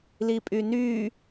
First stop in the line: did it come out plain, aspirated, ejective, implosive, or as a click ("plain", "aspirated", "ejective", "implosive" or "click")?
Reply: ejective